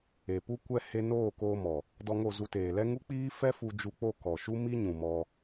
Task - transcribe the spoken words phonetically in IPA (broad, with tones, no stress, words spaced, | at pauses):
e˨pu˦ kʷɛ˦he˦ noː˦˨koː˧mɔ˨ | dɔ˧ ŋo˦˨zu˧teː˨lɛ˦ ŋu˦k͡piː˦ fɛ˦fu˧ d͡ʒu˧k͡po˦˨ kɔ˨ʃu˦mi˦ ɲũ˨mɔ˧